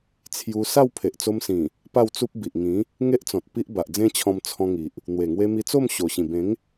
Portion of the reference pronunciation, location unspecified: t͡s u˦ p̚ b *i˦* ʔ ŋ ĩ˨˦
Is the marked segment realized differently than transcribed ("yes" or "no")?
yes